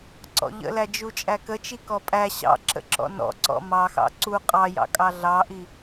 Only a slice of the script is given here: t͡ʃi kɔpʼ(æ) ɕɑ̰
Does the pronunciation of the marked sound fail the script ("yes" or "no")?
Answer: no